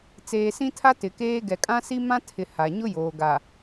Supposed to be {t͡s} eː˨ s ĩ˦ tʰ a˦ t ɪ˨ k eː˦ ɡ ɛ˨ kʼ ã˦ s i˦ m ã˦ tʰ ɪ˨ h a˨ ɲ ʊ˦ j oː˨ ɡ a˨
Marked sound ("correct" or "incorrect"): correct